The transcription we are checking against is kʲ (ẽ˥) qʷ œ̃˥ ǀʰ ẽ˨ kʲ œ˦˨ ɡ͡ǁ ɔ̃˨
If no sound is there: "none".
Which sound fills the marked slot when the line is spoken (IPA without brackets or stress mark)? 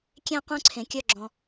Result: ẽ˥